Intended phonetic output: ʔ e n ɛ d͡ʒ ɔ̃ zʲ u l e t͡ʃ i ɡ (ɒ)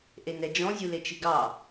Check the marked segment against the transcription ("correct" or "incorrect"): incorrect